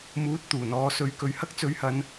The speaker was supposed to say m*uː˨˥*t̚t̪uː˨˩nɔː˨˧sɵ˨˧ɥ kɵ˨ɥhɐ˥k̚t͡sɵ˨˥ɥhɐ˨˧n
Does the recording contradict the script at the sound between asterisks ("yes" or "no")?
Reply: no